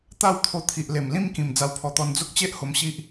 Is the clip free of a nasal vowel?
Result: no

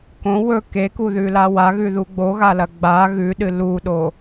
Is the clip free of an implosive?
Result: no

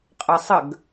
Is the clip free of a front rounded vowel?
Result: yes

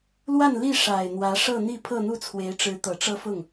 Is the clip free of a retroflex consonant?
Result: no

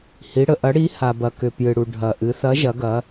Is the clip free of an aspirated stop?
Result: yes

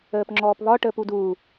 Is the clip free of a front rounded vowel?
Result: yes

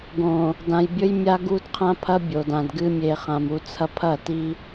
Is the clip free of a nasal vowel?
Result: no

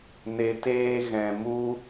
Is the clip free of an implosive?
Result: yes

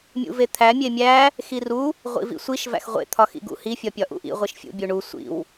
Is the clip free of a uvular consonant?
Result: no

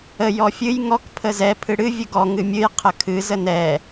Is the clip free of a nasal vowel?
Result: yes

